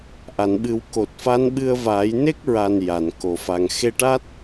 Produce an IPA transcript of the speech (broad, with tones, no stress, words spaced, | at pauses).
ʔa˨˩˨nɓɨ˨˩˦w ko˨˩t̚fa˧˥nɓɨ˧ə̯vaː˨˩˦j ne˦˥k̚ɹa˨˩n ja˨˩˨nko˨˩fa˨˩ŋ xe˧ʈa˦˥t̚